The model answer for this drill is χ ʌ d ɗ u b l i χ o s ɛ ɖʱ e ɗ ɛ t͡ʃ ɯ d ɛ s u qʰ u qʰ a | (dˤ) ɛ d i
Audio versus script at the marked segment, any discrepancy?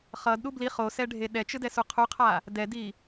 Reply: yes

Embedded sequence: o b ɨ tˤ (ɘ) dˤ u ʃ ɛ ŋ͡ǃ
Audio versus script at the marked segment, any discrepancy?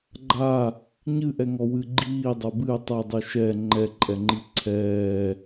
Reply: no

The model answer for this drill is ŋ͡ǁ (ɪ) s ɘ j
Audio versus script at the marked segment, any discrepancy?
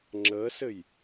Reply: yes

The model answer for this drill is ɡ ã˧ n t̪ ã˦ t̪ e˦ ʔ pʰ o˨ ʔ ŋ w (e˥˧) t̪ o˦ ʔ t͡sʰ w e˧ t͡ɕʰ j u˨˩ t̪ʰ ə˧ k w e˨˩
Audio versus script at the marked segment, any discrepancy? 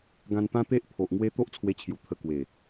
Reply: yes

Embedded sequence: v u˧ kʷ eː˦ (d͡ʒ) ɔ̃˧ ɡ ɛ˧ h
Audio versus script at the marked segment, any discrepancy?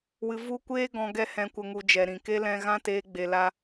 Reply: yes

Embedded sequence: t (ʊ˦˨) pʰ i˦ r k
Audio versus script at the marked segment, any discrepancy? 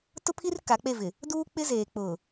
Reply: yes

